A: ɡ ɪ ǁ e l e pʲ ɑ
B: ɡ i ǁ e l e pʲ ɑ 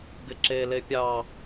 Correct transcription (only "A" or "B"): A